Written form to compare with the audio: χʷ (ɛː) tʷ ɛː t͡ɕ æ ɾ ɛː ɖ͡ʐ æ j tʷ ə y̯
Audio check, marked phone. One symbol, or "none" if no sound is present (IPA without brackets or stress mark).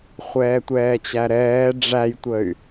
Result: ɛː